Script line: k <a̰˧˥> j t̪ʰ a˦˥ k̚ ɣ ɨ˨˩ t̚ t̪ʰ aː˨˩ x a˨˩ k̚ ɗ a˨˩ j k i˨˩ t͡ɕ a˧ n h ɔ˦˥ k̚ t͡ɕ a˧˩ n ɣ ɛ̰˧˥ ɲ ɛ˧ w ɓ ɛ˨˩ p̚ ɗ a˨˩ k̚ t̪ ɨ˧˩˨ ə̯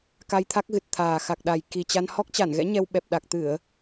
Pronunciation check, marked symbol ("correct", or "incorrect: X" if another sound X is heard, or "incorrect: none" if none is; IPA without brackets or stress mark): incorrect: a˧